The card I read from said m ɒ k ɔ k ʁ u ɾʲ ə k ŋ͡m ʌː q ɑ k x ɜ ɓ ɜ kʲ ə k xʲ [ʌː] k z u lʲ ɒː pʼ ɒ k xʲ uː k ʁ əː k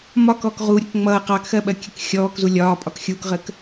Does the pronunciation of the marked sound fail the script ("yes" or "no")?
yes